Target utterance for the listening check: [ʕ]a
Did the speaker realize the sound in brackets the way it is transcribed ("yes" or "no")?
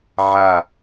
yes